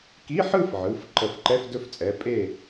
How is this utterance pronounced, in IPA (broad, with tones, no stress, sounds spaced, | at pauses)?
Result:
k i˧˥˧ ħ ɯ˥˨ f ʕ ɯ˩˧˩ f ǃ ə˧˩˧ f ǃ ɛ˧˥˧ f d ɵ˦˥ f t͡sʼ ɛ˩˧˩ pʼ e˥˨